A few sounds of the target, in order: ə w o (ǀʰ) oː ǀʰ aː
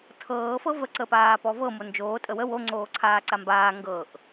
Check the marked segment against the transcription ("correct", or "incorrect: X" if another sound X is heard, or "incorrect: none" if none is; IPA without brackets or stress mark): incorrect: ŋ͡ǀ